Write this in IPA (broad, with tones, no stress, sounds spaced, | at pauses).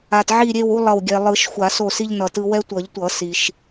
a˨ t ʕ i˦˨ ɾʲ e˦˨ w u˦ lˠ ʌ˦˨ w ɡʲ ɛ˨ lˠ ɯ˨˩˦ ʃ xʷ a˨˩˦ s o˦˨ s i˦ ʎ n ʌ˨ t ɯ˦ w ɛ˦ tʷ ʌ˨˩˦ ʎ tʷ ʌ˨˩˦ s i˨ ʃ